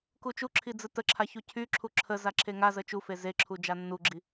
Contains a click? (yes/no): yes